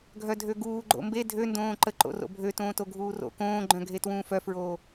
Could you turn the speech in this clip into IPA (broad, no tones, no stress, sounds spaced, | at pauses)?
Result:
ɡʱ œ dʱ ø ɡ uː ɡ͡ǃ o̰ m b e dʱ ø n d õː ǃ ə ǃ o̰ r o̰ bʱ ø t õː t o ɡʱ uː r o̰ k õː ɡ͡ǃ œ̃ ɡʱ e t w ũː f œ f ɹ oː